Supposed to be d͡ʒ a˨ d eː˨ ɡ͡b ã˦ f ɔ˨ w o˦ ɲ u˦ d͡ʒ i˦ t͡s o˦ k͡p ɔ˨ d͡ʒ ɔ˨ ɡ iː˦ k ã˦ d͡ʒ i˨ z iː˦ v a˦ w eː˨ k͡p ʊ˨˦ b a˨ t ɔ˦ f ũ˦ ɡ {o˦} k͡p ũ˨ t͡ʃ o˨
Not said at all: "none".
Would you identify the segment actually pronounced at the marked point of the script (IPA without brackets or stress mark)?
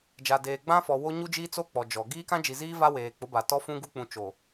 u˦